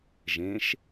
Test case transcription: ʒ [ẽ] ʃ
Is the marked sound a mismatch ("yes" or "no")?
no